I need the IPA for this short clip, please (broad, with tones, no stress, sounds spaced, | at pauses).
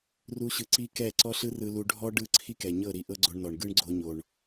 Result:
r u˦ ɕ ɯ˧ ǀ i˦ k ɛ˦˨ ǀ ɔ˦ ɬ ɯ˦ r ɯ˧ l u˧ ɖʱ ɔ˦ ɖ ɯ˦˨ ǀʰ i˦ k ɛ˨ ɲ ɤ˦˨ ɾ i˧ ʔ ɤ˦ ɡ͡ǀ o˧ ɳ n ɔ˨ ɳ ɡ ɯ˦ ɳ ɡ͡ǀ o˧ ɲ o˨ ɳ